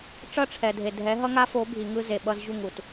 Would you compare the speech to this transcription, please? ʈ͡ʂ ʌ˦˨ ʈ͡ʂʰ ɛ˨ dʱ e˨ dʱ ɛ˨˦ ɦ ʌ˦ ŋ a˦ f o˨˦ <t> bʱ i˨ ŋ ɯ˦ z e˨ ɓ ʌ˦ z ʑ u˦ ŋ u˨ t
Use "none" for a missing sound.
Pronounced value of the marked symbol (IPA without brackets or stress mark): none